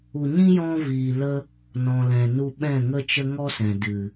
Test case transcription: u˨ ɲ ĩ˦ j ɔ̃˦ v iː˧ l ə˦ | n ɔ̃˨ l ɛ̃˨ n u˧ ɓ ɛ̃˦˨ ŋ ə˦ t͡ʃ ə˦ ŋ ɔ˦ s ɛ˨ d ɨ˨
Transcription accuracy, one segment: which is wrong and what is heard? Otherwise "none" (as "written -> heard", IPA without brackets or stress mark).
ɛ˨ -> ɛ̃˨